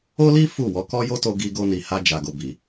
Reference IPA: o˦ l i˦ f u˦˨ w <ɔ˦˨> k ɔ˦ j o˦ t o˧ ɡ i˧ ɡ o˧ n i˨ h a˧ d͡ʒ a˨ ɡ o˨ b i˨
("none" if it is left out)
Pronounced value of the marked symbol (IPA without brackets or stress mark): ɔ˨˦